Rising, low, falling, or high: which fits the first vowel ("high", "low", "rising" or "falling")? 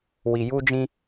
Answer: low